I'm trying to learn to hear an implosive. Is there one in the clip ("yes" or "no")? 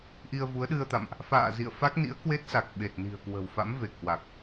yes